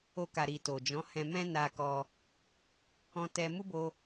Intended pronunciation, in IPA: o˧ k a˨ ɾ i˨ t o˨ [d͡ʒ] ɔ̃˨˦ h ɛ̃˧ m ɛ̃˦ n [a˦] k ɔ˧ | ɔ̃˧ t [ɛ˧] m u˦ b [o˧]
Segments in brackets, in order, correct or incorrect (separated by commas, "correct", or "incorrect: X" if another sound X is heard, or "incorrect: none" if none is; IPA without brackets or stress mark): correct, incorrect: a˧, correct, correct